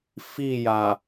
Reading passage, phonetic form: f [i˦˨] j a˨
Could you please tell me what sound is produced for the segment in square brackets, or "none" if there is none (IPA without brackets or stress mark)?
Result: i˦˨